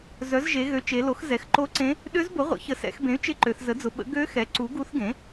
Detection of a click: present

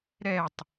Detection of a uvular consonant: absent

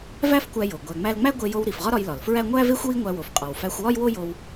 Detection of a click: absent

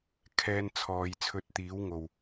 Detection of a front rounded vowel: absent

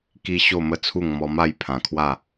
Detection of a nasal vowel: present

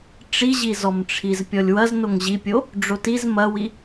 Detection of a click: absent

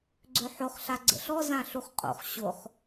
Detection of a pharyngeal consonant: present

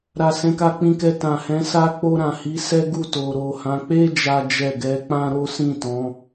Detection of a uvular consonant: absent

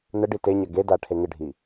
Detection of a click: absent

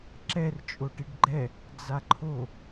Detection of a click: present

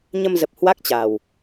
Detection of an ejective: absent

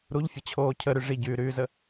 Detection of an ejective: absent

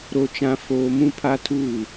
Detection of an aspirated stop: present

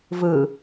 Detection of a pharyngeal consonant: absent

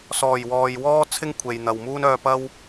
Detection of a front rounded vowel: present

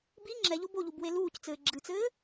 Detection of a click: present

